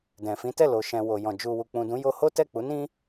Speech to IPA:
d ɛ̃˨ f ĩ˨˦ t ɛ˦˨ l o˨ ʃ ɛ̃˨ w o˨ j ɔ̃˨ d͡ʒ u˨ w u˨ k͡p ũ˨ d ũ˨˦ j o˧ h o˦ t ɛ˦˨ k͡p u˨˦ n ĩ˦

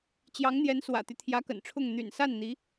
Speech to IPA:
t͡ɕ j ɑ˧˥ ŋ n̪ j ɛ˧˥ n s w ä̰˨˩ t̪ y˦ t̪ʰ j ä˧˥ k ə̰˨˩ n ʈ͡ʂʰ ʊ˥˩ ŋ n̪ y̰˨˩ n s a˥˩ n n̪ i˧˥

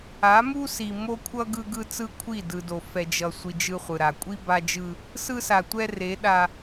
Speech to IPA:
a˨˦ m u˦ s i˨ m o˦ kʷʰ ʌ˦ ɡ ɯ˦ ɡ ɯ˦ t͡s ɯ˦ kʷʰ i˦˨ d ɯ˨ d o˨ f ɛ˨ d͡ʒ ʌ˨ sʷ i˨ d͡ʒ ɯ˦ χʷ ɯ˨ ɾ a˨ kʷʼ i˦ b a˦ d͡ʒ ɯ˦ | s ɯ˦ s a˨ tʷ ɛ˦ r e˨˦ ɗ a˦

